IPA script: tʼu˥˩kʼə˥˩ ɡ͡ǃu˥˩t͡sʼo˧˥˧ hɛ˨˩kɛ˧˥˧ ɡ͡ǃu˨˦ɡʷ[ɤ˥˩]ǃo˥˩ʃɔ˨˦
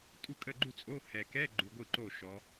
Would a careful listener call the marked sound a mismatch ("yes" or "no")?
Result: yes